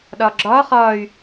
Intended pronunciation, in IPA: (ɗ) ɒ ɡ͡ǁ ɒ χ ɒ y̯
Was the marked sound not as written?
no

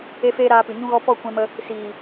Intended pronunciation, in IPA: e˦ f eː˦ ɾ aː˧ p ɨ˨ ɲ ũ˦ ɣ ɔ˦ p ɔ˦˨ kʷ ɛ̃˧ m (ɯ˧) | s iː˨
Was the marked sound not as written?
yes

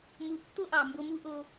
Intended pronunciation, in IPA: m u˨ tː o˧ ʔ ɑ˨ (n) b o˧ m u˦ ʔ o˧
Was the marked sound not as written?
yes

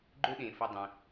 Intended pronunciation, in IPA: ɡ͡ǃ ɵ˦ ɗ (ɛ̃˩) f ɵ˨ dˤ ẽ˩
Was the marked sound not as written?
yes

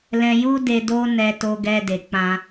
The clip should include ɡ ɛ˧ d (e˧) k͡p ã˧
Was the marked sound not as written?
yes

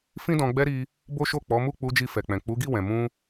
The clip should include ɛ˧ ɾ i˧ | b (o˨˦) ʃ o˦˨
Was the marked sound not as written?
yes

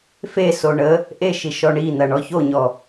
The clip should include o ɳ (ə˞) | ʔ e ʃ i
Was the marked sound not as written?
yes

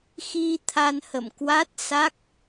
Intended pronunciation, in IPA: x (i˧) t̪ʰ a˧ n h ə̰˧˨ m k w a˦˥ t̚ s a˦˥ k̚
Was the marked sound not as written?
no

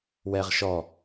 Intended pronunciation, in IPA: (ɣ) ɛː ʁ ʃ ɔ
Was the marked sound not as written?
yes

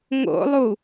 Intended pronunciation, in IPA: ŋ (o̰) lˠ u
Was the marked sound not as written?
no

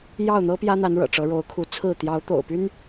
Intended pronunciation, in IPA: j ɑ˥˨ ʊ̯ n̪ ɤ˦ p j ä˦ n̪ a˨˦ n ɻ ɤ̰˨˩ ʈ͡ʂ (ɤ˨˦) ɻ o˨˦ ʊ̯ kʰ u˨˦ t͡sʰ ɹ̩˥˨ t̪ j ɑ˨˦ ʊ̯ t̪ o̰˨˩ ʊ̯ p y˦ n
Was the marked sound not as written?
no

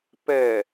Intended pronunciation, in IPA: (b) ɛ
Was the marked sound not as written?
yes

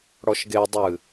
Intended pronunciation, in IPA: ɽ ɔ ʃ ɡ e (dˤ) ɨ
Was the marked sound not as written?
no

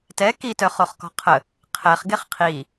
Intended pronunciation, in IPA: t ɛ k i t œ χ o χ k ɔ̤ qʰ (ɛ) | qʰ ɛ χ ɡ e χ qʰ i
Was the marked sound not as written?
yes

